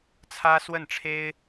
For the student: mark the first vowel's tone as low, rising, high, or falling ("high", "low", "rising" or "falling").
high